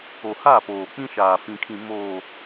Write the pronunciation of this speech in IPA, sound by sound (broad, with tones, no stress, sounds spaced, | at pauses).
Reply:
o˨ h a˦˨ p oː˨ k͡p ĩ˦ ʃ aː˨ f ĩ˨ kʰ ĩ˨ m oː˨